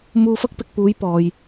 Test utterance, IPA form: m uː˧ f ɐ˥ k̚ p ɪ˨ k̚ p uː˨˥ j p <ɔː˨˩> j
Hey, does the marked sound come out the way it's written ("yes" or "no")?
no